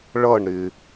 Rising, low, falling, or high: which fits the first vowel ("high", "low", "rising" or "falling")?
falling